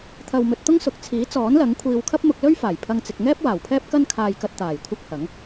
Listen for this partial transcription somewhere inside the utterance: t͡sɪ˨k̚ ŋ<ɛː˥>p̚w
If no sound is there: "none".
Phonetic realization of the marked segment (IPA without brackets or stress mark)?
ɛː˥